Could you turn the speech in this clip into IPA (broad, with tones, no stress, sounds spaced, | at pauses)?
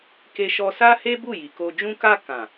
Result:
k e˧ ʃ ɔ˧ s a˦ h e˦ b u˦˨ j i˨ k o˧ d͡ʒ ũ˧ k a˧ k ã˨